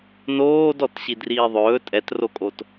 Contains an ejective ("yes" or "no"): yes